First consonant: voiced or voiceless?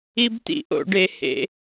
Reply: voiced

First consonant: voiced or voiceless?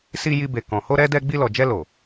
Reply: voiceless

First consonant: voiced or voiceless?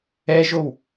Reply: voiced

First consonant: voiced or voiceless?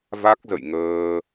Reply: voiced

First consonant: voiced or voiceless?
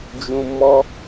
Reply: voiced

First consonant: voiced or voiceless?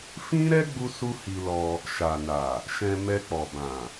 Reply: voiceless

